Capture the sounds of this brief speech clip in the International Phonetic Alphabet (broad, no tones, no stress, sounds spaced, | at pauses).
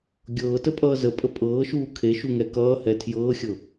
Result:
ɡʲ ɤː t ə pʼ ʌː z ə pʼ ə pʼ ɤː ʃ uː kʰ e ʃ u ŋ ɛ k ʌː h ɛ tʰ j ɤː xʲ ɤ